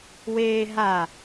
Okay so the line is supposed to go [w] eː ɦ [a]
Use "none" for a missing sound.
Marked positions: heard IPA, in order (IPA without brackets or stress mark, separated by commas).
w, a